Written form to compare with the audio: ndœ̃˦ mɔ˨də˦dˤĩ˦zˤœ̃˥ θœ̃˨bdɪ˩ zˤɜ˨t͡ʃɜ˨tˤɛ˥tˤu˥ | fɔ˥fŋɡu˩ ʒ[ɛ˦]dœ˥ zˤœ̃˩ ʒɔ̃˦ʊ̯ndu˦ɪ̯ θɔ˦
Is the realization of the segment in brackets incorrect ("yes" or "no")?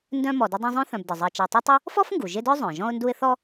yes